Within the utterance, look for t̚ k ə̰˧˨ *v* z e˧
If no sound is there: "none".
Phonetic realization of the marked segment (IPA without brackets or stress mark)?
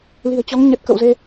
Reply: w